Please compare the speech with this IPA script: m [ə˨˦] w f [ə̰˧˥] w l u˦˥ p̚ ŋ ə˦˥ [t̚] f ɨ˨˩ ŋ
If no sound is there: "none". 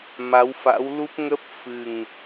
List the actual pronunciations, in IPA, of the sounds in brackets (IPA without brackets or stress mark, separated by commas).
a˨˦, a̰˧˥, p̚